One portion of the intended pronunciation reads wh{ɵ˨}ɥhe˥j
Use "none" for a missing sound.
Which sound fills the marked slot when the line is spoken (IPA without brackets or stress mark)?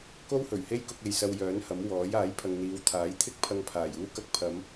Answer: ɵ˨˩